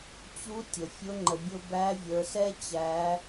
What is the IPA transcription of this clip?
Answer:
t͡ɕu˧˥ tʲə˩ fʲʊ˧˥ ŋ͡ǃə˩ bʲʊ˧ bæ˧˥vʲə˞˩˧sɛ˥ t͡ɕæ˩˧

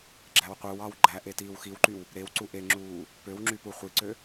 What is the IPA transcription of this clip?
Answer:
ɡ͡ǁæwqʷɯwɑw ɡ͡ǃæ ʔetiːwxiwǃyw | ɾew ǀuʔeŋ͡ǁuː | pøwŋ͡ǁy puχʷiǀø

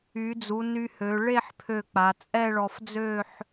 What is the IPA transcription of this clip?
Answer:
y˩˧d͡zu˩˧ ny˧hø˩˧ ɭe˥˧ħ pʰø˧˩k͡pa˩˧ t͡sʼɛ˥˧ɭɔ˧fd͡zø˥˧ħ

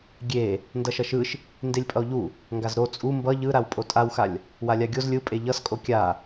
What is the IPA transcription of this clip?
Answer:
ɡʲe | ndʌʃʌʃɯʃ | ndelʲpʼʌo̯ʎu | ŋɡazɾo t͡sʼu mbʌ ʎɯɾaw pʼotʼawxalʲ | walʲaɡʲoz lʲɯpʼe ʎʌskʼo kʲa

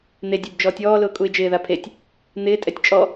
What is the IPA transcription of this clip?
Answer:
n̪edʲub d͡ʒɔːtʲɔːlʊː kʼuɪ̯d͡ʒɪːða pʰetʲ | n̪ɪːtʼɛtʲ t͡ʃʼɔ

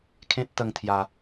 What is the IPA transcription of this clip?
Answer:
kʰẽ˦t̚t̪ə˧ŋ t̪ʰja˧

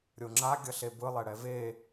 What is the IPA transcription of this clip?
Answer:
ɾʲoŋ͡ǁa ɡʲʌɬebɯ lˠɛɽɛve

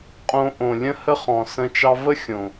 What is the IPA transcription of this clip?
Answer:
qʼõ˧ʔõ˨lʲə̃˦hə˦ χɔ̃˨sə̃˧ t͡ʃɑ˧və˦ xʲõ˨

